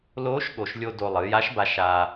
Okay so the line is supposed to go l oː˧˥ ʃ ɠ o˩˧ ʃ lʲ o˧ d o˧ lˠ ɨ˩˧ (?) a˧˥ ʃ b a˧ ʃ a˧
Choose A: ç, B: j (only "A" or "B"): B